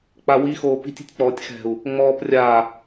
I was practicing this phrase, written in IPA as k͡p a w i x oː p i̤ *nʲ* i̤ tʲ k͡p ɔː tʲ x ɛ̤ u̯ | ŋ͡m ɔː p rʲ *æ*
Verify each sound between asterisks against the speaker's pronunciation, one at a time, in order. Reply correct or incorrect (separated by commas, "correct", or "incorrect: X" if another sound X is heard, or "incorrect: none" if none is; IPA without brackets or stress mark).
incorrect: tʲ, incorrect: a